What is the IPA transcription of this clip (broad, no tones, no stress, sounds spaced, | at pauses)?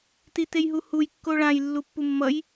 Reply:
t i t e j ɦ u h u j kː o ɭ ã j lː u pː u mː ʌ j